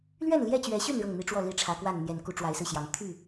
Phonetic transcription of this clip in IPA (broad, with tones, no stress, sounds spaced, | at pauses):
l ɥ ɛ˥˨ n l j ɛ˥˨ t͡ɕ ɥ ɛ˨˦ ɕ y˥˨ n ɻ ɤ˥˨ ŋ n̪ i˦ ʈ͡ʂ w ɔ˥˨ l i˥˨ ʈ͡ʂʰ ä˨˦ k w a˥˨ n n̪ j ɛ˨˩ n k u˦ ʈ͡ʂ w a˨˦ ɪ̯ s ɹ̩˧ ɕ j ɑ˨˦ ŋ t̪ʰ y˥˨